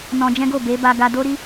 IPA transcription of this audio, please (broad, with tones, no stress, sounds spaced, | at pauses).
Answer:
n ɔ̃˧ d͡ʒ ɛ̃˦ ɡ o˦˨ b e˨˦ b a˧ ɡ a˧ d o˦ ɾ i˦